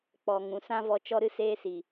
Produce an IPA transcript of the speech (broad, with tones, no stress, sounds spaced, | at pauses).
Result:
k͡p ɔ˨ ŋ ũ˨ s ã˦ v ɔ˧ t͡ʃ ɔ˧ ɾ ɨ˧ s eː˧ s i˨